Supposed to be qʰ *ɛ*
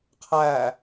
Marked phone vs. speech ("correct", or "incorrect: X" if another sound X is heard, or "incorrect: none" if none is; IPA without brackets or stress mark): incorrect: æ